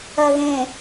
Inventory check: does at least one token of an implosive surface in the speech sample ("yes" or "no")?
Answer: no